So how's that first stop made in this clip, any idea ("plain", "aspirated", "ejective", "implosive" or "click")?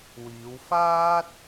plain